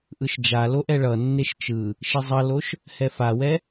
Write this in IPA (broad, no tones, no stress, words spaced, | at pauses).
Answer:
ʔɯʃd͡ʒalo ʔɛɭʌnːeʃ t͡ʃɯ | ʃizˤʌloʃ | hɛfawɛ